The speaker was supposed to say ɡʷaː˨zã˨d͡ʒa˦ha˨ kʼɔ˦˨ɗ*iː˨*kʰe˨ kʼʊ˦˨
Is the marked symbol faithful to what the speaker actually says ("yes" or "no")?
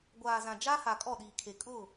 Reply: yes